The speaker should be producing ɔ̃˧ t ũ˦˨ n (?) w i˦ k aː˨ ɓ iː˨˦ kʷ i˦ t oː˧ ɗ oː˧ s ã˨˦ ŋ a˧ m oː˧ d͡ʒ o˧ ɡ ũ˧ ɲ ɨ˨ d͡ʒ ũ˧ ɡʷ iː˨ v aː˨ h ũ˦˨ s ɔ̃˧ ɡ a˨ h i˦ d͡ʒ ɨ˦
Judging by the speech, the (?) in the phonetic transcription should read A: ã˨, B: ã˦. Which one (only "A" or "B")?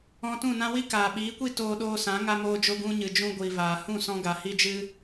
B